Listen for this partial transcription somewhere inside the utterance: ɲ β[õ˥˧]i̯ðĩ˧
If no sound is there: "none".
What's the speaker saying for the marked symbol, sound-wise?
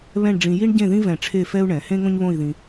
õ˥˧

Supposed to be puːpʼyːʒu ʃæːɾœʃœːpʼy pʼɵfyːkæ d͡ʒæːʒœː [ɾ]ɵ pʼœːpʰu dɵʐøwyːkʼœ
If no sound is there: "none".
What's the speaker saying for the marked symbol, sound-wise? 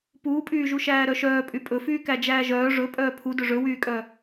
ʐ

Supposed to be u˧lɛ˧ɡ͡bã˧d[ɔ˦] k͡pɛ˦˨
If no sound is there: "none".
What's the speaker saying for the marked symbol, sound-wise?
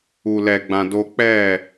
o˦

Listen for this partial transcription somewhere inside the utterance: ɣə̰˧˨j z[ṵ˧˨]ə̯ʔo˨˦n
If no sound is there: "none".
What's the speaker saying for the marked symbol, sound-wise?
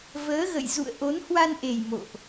ṵ˧˨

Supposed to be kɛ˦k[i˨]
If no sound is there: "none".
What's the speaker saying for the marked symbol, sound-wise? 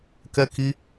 i˦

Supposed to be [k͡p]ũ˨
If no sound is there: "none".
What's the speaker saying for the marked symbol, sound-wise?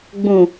ɡ͡b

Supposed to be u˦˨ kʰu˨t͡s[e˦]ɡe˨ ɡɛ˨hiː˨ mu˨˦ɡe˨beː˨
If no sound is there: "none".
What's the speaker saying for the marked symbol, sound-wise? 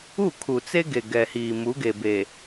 e˦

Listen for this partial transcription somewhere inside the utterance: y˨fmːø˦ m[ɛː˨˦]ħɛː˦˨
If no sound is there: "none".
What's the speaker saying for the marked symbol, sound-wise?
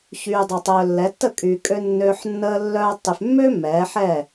ɛː˨˦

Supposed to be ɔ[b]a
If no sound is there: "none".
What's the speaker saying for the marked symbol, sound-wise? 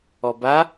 b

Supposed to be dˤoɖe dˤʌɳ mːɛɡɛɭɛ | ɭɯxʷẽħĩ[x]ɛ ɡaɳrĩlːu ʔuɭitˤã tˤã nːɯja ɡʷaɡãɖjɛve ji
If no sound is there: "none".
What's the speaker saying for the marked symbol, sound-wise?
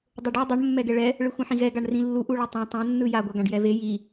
ɣ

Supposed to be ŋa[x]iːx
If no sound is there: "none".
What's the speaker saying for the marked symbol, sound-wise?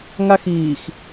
x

